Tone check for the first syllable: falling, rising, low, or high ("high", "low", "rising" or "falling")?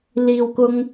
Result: low